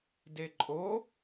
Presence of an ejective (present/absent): present